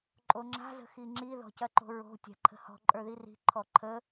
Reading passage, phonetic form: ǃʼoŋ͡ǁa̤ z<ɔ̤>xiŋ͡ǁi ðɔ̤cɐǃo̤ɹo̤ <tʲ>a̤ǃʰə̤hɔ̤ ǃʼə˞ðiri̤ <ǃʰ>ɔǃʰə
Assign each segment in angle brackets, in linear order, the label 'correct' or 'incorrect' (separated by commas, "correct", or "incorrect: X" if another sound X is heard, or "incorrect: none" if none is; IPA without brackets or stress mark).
incorrect: ə̤, correct, correct